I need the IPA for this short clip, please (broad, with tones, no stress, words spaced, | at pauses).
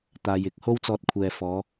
t̪aː˨jɪ˨˥k̚ ho˥wt͡sɔː˧t̚kʷʰɛː˨ fɔː˨˧